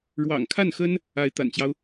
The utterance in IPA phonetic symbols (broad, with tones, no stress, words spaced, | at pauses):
ɻwɑ̰˨˩ŋkʰa˥˩nxə˥n | a˧˥ɪ̯t̪a̰˨˩nt͡ɕjɑ˦ʊ̯